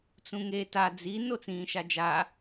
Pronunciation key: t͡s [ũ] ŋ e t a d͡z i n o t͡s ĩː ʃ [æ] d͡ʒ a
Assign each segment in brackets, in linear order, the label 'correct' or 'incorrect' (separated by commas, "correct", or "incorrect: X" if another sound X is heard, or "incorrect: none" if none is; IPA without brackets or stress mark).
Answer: correct, incorrect: a